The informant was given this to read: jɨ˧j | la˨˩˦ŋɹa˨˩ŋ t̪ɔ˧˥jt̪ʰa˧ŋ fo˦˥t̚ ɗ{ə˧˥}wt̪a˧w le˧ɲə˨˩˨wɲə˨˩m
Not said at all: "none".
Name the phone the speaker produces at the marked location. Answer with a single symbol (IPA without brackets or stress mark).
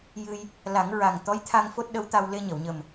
ə˧˥